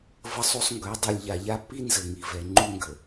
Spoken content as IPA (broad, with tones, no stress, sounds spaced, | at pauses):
v ə˦ sˤ u˦ sˤ ŋ ɡ œ˨˦ dˤ u˨ lʲ ʎ a˨ ʎ a˦ pː i˦ n z ə˨ ŋ i˨ v ɛ˨ ŋ͡ǃ u˦ ŋ ɡ ə˨